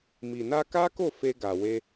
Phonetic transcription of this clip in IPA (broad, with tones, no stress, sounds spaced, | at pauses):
m i˨ n a˧ k a˦ k o˦˨ f e˧ ɡ a˨ w e˧